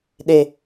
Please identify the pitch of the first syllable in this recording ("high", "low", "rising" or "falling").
low